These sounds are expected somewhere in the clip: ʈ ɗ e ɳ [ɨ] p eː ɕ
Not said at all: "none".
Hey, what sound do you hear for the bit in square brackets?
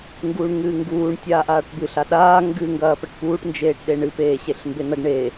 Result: ɨ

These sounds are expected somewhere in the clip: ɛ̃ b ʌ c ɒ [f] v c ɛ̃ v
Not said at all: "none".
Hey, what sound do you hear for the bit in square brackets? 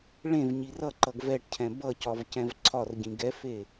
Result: none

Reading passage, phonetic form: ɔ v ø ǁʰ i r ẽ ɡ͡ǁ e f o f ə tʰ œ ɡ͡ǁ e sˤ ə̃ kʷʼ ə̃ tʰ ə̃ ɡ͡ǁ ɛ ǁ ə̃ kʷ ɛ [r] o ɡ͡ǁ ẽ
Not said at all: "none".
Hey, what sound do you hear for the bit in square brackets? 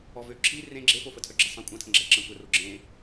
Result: r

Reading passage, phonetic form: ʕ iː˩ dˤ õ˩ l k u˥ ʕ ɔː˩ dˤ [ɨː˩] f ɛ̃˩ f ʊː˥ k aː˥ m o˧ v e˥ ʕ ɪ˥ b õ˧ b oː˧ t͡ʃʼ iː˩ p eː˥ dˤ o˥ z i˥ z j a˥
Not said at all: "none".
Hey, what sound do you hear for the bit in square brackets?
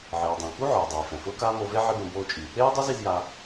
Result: eː˩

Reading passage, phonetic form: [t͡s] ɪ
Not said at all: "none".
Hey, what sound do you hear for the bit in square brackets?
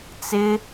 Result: t͡s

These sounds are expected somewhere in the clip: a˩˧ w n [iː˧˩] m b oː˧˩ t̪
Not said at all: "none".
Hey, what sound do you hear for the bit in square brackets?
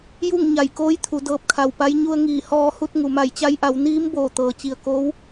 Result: iː˧˥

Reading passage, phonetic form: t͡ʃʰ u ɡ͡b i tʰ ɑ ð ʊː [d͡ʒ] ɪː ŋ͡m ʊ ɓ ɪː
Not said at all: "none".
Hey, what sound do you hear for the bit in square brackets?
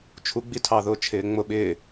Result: t͡ʃʰ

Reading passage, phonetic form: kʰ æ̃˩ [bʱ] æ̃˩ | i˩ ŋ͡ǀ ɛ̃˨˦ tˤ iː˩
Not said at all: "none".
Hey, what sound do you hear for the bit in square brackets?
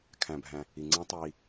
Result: bʱ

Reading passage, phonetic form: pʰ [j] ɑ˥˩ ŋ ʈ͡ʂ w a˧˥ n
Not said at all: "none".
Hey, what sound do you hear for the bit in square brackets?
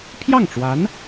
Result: j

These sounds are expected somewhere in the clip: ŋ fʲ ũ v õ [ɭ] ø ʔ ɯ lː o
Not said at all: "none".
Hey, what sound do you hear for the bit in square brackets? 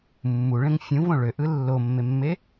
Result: ɭ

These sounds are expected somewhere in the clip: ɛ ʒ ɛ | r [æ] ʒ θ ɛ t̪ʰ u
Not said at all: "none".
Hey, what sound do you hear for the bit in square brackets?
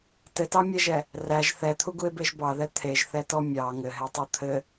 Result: æ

